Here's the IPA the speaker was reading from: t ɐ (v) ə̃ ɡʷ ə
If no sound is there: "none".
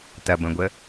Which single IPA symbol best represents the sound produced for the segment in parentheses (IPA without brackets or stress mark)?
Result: b